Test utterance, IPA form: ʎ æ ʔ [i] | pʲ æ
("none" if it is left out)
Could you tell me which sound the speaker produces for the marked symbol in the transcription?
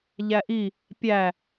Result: i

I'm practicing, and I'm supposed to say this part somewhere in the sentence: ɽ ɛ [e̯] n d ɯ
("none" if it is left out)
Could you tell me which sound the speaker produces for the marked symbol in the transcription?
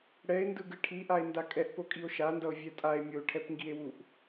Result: e̯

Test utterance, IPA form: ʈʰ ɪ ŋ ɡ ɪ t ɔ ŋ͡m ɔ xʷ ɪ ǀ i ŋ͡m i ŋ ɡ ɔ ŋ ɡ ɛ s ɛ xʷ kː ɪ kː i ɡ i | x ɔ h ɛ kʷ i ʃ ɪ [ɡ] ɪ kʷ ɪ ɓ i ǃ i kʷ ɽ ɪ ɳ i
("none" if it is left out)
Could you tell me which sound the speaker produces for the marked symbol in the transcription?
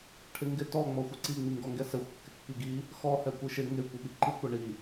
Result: ŋ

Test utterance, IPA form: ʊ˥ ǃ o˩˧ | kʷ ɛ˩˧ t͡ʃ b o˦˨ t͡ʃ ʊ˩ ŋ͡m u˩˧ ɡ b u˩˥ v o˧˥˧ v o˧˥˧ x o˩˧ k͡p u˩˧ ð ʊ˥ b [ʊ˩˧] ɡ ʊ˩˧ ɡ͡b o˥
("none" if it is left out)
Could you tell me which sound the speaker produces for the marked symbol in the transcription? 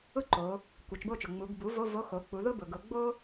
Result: ʊ˩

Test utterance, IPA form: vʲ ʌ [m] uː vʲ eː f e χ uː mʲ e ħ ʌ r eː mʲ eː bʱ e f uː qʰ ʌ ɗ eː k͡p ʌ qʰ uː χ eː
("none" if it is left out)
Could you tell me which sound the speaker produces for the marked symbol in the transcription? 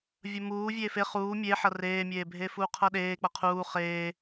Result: m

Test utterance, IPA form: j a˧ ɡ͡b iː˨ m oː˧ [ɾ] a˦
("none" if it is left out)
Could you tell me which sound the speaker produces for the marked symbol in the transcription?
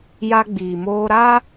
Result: ɾ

